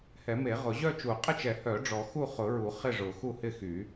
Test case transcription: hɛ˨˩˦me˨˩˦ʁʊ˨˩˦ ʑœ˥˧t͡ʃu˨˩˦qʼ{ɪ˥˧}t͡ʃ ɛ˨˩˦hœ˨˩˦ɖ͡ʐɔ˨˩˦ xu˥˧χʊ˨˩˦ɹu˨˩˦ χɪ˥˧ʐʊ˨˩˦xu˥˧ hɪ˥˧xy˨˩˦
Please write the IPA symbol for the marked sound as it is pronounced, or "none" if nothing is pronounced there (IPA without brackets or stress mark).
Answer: ɪ˥˧